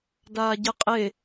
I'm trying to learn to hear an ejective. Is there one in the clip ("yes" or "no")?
yes